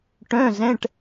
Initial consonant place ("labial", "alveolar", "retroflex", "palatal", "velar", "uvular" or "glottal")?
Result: retroflex